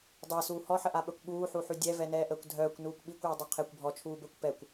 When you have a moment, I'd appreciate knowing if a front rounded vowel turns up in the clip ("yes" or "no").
yes